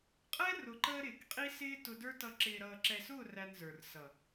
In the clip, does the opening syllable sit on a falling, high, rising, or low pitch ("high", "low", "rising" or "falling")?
high